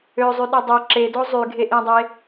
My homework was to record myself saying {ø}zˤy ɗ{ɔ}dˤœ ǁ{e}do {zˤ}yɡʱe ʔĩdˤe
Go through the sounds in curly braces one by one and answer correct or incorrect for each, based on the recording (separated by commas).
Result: correct, correct, correct, correct